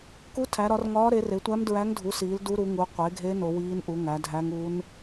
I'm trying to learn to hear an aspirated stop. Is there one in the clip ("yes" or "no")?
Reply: yes